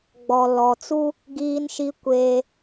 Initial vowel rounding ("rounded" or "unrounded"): rounded